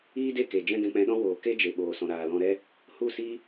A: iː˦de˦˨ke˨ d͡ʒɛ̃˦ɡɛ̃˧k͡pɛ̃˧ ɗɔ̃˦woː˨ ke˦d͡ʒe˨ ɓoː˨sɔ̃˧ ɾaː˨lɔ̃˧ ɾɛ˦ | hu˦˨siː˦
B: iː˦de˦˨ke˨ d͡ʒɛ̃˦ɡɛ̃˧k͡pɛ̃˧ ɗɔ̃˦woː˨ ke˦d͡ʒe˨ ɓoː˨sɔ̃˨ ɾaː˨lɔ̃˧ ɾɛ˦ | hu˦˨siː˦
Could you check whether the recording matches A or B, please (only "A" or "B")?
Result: B